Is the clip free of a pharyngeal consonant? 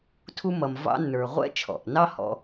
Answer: yes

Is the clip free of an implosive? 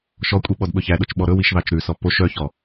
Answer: no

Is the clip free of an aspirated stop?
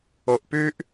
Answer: yes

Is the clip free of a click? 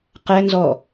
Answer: yes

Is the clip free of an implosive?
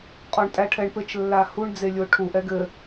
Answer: yes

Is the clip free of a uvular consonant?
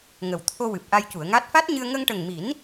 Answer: yes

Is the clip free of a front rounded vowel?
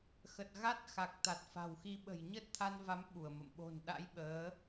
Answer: yes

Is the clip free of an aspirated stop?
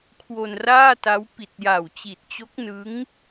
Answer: no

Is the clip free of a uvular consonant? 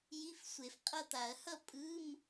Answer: no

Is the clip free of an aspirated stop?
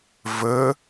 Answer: yes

